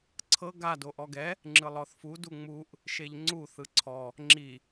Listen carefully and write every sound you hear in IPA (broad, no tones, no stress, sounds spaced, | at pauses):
ǀʰ ɤ ɡ a d o ʔ ɔ ɡ ɛ | ŋ͡ǁ ɯ lˠ ɔ θ f u d u ŋ͡m u ʔ | ʃ e ʎ ŋ͡ǀ u θ ɯ ǀʰ ɔ | ŋ͡ǁ i